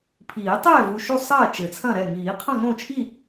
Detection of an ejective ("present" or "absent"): absent